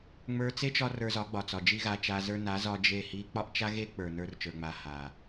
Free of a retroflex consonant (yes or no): yes